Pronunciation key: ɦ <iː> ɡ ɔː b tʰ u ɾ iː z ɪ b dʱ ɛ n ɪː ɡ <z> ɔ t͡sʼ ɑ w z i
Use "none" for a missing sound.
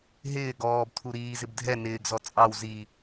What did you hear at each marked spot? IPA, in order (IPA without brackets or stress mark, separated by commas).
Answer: ɪː, z